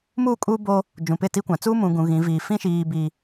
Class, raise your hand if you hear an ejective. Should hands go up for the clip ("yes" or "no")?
yes